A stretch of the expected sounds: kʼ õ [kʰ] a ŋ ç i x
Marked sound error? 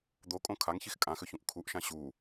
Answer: no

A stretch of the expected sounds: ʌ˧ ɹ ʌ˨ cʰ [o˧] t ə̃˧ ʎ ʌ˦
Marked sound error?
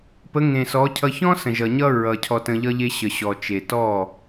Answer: yes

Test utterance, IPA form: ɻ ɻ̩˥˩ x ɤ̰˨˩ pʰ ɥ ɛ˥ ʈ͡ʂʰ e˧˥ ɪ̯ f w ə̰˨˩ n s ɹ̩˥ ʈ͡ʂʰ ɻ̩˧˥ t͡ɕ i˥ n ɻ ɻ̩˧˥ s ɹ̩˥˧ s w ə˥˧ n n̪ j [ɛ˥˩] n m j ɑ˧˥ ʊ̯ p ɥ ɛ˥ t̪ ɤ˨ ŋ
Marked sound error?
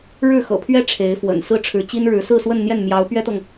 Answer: no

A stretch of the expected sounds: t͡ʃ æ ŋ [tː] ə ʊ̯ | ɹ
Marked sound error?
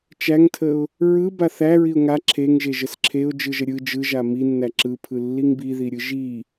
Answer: yes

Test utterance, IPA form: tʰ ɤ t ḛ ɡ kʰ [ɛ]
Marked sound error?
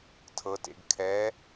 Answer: no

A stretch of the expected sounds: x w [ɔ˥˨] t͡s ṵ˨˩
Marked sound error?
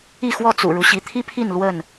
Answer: no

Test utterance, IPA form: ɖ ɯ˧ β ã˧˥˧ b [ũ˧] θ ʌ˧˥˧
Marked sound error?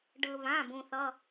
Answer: no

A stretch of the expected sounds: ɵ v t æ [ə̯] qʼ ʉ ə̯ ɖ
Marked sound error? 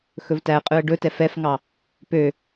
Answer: no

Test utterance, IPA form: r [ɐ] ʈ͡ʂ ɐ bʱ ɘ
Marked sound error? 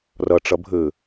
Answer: no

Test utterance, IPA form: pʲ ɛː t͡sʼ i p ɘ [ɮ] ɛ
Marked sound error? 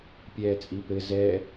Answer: yes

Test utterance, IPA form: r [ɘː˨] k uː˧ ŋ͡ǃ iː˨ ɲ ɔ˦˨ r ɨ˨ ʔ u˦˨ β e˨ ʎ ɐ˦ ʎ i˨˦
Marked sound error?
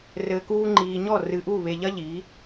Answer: no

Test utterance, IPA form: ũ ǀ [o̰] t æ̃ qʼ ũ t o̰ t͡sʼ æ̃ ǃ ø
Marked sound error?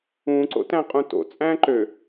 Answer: no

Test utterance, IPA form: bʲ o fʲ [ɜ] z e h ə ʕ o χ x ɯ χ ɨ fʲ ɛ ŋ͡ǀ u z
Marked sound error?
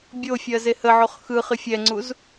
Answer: no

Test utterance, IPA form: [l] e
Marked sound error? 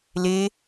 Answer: no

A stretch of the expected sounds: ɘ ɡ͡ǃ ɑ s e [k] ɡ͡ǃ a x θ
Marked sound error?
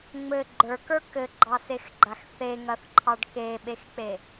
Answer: yes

